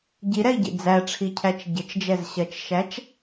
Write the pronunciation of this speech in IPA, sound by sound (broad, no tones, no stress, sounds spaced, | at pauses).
ɟ i ɾ ɛ i̯ ɟ ḭ d͡z æ ʈ͡ʂʰ i cʰ æ t͡ʃ ɟ ɪ t͡ʃ d͡ʒ ɛ z ɕ ɜ t͡ʃ ʃ æ t͡ʃ